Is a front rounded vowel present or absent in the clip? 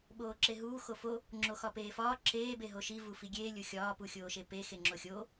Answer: absent